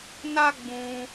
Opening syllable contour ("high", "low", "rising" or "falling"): high